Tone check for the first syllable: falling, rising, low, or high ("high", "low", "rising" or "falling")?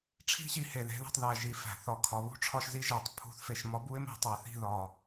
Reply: high